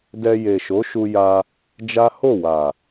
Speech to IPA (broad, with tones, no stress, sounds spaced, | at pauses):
d ɛ˧ j e˨ ʃ o˨˦ ʃ u˧ j a˧ | d͡ʒ a˦ h o˦˨ w a˨